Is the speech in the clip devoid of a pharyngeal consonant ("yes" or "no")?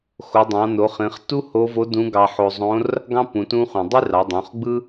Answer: no